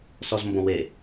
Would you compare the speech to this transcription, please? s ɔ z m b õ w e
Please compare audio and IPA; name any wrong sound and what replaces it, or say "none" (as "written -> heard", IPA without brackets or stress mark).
none